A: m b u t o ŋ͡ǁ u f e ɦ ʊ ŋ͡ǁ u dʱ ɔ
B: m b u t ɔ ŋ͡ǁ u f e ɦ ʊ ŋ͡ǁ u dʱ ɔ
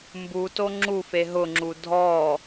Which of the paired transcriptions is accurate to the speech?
A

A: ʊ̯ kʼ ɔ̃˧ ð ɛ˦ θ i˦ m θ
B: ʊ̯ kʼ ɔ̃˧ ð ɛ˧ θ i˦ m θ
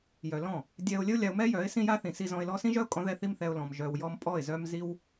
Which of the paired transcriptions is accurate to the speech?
A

